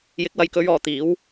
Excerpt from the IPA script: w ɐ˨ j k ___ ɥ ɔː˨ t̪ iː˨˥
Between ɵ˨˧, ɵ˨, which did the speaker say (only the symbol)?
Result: ɵ˨˧